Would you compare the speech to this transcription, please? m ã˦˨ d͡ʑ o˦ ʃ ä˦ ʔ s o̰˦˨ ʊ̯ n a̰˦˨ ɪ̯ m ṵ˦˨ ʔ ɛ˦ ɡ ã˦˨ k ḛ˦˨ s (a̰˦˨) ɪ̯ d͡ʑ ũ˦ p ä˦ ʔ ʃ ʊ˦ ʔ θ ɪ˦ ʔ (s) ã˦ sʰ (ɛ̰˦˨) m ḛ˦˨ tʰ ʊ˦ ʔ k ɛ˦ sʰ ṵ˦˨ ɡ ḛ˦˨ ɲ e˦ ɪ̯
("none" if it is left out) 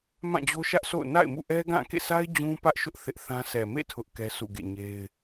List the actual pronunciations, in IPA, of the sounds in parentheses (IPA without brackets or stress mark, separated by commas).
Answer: a˦, θ, ɛ˨